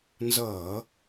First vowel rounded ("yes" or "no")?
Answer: no